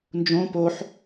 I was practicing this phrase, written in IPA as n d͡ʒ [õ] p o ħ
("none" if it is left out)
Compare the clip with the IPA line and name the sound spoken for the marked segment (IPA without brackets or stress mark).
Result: õ